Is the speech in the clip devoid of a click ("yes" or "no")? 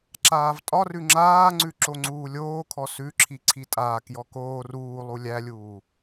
no